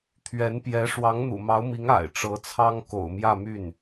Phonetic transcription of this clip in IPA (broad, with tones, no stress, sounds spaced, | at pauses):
t̪ʰ ɥ ɛ˧˥ n p j ɛ˧˥ ʂ w ɑ˧˥ ŋ n̪ ṵ˨˩ m ɑ˧˥ ʊ̯ m i˧˥ ŋ a̰˨˩ ɪ̯ ʈ͡ʂ ɤ˧˥ t͡sʰ ɑ˥ ŋ k o̰˨˩ ʊ̯ m j ä˥˧ m y˥˩ n